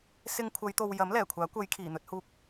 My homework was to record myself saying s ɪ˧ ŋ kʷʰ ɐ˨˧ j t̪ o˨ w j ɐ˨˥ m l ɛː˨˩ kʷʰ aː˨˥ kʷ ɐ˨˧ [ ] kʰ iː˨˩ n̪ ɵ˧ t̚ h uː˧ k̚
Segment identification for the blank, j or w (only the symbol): j